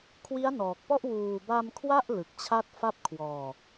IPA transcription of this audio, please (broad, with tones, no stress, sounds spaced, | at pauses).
kʰ w i˦˥ a̯ n ɔː˨˩ k̚ p ɔ˥˩ ʔ w uː˨˩ b a˧ m kʰ w a˥˩ ʔ l ɯ˨˩ k̚ t͡ɕʰ a˥˩ t̚ f a˥˩ p̚ kʰ w ɔː˧